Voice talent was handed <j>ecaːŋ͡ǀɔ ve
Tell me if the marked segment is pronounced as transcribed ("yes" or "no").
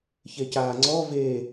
no